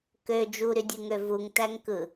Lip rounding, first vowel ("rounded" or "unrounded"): rounded